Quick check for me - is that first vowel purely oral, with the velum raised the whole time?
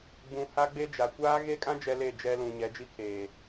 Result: no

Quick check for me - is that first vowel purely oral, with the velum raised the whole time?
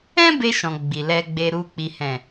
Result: no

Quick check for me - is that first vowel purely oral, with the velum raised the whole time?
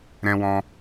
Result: no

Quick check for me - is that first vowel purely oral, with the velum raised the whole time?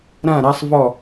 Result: no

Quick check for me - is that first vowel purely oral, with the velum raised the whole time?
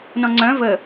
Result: no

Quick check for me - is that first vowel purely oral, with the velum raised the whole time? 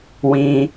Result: no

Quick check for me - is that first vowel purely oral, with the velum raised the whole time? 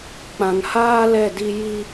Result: no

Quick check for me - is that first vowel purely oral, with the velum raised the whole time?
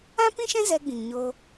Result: no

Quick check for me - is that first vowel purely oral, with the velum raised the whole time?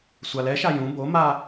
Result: yes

